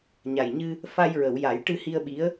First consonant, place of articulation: palatal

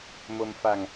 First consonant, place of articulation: labial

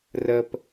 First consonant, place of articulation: alveolar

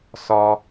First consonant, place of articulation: alveolar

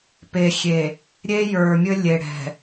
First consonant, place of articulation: labial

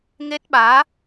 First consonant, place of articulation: velar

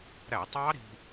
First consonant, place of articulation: alveolar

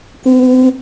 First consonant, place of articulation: velar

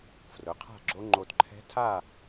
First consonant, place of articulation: labial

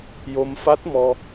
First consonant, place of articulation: palatal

